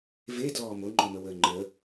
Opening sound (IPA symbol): v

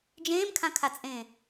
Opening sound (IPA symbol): d͡ʒ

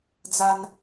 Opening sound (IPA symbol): d͡z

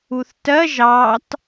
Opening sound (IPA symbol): u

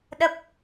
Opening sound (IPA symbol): ɗ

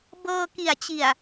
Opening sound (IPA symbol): b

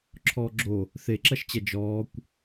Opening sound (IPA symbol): ǁʰ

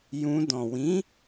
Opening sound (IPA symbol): j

